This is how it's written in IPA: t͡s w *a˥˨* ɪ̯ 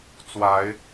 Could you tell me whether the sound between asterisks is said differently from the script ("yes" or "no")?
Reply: yes